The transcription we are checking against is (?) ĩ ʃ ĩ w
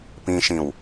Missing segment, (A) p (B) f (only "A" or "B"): A